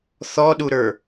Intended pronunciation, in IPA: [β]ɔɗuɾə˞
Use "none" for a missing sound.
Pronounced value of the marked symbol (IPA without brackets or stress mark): θ